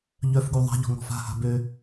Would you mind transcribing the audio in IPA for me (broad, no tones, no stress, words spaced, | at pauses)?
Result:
ʎœfɡu ðˤa̤ʎɔ̤ ŋɔ̤fa̤ha̤ bø